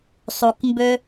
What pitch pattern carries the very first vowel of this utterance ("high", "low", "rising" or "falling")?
low